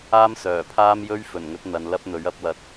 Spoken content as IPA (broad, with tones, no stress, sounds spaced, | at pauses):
aː˥ m s œː˨˩ pʰ aː˥ m j ɵ˥ ɥ f ɵ˨˩ n ŋ ɵ˨˥ t̚ n̪ ɐ˨˧ n l ɐ˥ p̚ n̪ ɵ˨˥ ɥ ɐ˧ p̚ w ɐ˨ t̚